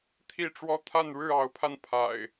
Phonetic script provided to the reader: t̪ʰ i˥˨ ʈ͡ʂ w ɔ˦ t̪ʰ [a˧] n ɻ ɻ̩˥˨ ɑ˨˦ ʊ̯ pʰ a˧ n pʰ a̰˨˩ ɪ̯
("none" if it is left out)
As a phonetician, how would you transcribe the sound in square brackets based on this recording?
a˥˨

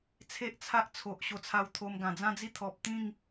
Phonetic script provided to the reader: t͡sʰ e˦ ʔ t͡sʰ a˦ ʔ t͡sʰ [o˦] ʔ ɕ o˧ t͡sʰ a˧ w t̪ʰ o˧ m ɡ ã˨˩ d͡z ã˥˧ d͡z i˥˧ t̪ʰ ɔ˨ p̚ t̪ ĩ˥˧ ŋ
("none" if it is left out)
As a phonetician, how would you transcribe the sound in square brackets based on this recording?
o˨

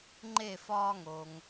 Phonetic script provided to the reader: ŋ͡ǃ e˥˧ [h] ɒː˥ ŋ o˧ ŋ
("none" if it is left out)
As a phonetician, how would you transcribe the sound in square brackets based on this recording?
f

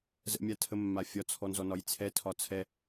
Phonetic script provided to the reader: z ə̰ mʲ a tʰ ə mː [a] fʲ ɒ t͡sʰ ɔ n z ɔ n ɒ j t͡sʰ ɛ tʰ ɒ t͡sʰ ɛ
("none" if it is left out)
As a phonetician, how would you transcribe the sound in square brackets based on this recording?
a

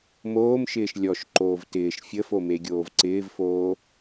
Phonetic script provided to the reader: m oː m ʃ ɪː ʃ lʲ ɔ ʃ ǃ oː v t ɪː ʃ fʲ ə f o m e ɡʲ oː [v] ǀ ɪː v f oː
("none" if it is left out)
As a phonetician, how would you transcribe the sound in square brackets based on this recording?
v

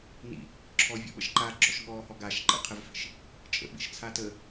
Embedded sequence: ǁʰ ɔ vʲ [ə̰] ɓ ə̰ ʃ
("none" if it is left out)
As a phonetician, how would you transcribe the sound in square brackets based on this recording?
ɔ̰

